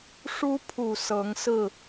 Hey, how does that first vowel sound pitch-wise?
high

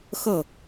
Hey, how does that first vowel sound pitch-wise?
falling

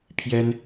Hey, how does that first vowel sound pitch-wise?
high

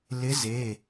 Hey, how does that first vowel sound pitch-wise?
rising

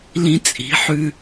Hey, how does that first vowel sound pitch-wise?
low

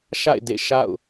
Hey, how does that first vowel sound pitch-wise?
falling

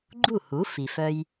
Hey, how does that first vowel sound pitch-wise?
falling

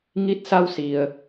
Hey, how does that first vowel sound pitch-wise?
rising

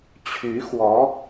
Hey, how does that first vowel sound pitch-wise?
rising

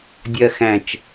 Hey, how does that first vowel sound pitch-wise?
low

